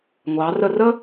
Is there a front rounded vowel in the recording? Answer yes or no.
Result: no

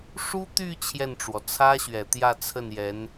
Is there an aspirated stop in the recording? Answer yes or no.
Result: yes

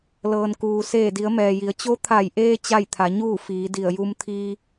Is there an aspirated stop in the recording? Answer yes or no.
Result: yes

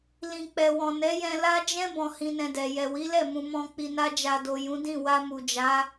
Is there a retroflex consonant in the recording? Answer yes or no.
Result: no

